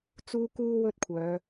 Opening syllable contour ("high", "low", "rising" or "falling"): high